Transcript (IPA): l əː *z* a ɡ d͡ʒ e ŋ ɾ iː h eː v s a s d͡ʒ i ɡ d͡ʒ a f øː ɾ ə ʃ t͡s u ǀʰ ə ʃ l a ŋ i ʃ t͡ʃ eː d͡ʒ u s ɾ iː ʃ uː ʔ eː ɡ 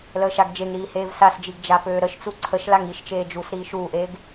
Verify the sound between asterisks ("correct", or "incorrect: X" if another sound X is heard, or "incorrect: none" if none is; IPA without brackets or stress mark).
incorrect: ʃ